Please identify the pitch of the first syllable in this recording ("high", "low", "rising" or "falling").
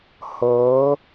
rising